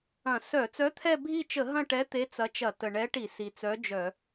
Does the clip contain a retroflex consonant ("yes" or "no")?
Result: yes